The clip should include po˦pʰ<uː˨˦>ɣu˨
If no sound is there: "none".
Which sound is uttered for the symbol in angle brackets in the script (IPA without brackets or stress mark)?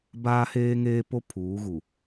uː˨˦